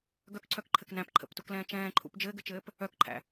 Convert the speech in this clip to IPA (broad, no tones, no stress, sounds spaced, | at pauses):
ɡ œ k ǀʰ œ k ǃʰ ɘ k n æ̃ p ǃʰ ə̰ p t u k l ɛ̃ː t͡ʃ ɛ̃ː ǃʰ ṵ p d͡ʒ ɘː ɡ ɘ t͡ʃ ɘː p | œ k ǃʰ æ̰